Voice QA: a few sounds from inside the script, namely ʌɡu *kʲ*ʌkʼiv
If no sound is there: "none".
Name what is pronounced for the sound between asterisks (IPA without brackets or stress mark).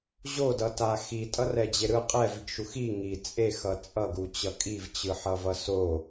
t͡ɕ